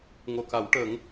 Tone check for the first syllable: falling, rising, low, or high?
low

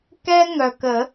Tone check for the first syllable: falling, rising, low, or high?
high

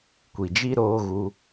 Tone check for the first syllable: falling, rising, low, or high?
low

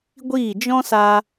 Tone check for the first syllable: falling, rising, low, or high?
falling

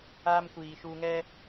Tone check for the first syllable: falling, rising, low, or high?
high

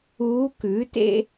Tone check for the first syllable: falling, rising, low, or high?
rising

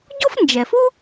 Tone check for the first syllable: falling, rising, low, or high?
high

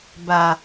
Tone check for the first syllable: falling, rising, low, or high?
low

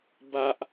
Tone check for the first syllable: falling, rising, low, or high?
high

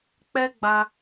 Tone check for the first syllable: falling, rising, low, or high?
high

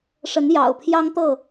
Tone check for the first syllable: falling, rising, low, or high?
rising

